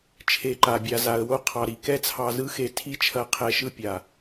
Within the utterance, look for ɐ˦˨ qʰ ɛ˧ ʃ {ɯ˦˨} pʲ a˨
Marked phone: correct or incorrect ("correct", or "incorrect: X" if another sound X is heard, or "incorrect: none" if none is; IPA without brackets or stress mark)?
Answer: incorrect: ɯ˦